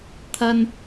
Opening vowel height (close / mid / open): open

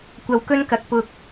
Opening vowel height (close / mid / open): open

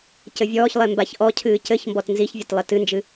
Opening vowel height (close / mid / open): mid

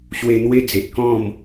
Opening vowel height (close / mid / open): mid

